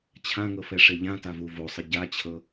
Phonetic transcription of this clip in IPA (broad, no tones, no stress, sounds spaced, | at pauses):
t͡ɕʰ ã ŋ ɤ f ɛ ʂ e ʎ ã t a v u v o sˤ ɯ ɟ a t͡ɕʰ ɤ